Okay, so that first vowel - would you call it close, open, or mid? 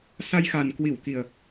open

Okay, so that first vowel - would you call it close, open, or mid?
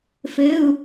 mid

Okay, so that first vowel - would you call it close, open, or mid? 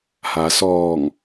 open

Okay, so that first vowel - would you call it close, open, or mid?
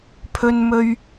mid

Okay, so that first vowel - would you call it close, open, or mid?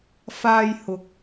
open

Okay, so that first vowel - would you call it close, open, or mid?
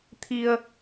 close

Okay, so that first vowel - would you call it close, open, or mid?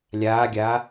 open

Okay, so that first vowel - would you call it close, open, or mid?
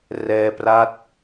mid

